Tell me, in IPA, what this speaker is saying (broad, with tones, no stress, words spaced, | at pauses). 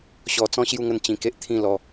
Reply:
ɕɔ˧ t͡sɔ̃˦ɕju˥˧ŋə˥˧n t͡ɕĩ˧ke˦ʔ t̪ʰĩ˥˧lɔ˧